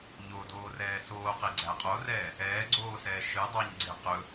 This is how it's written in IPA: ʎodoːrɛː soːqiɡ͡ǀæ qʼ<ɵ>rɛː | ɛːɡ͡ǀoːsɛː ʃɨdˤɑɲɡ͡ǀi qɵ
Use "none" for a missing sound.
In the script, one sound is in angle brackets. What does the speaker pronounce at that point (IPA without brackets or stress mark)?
o